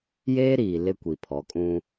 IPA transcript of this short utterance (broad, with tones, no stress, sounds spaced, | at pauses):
j eː˦ ɾ iː˨ l ɪ˦ kʷ i˨ pʰ ɔ˨˦ kʼ ũ˦